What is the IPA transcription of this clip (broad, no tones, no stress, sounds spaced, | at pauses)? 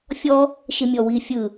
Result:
fʲ ɔ | ʃ i mʲ ɔ w i fʲ ɯ